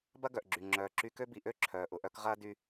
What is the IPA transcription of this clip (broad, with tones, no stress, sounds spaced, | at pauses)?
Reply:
b ɐ˥ ɡ œ˩ ʔ ɡ͡ǁ y˩ ŋ͡ǁ œː˩ ǁ y˧ k ø˥ b i˩ ʔ ø˥ ǁʰ œː˩ ʔ ʊ˩ ʔ œ˧ k ʁ ɐː˥ d y˧